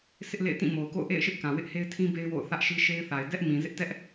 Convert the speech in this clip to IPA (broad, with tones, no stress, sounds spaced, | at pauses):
s ɪ˦ ʔ l ḛ˦˨ ɪ̯ t ĩ˦˨ m o˨ ʊ̯ k o̰˦˨ ʊ̯ ʔ ḛ˦˨ ɪ̯ ʃ ɪ˦ ʔ k ã˨ w ɪ˦ ʔ h e˦ ɪ̯ tʰ ĩ˦ b e˦ ɪ̯ w o̰˦˨ ʊ̯ θ ä˦ ʔ ʃ i˦ ʃ e˦ ɪ̯ θ a˨ ɪ̯ d ɛ˦ ʔ m ĩ˨ z ɪ˦ ʔ t ɛ˦ ʔ